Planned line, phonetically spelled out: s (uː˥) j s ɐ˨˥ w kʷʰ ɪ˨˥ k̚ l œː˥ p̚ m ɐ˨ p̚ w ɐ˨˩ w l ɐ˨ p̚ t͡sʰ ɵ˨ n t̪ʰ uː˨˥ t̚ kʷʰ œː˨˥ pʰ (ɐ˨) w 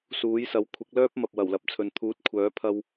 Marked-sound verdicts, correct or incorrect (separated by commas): incorrect, incorrect